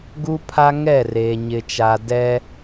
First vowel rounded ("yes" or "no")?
yes